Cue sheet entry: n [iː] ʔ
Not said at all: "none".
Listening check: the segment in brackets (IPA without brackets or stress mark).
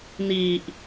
iː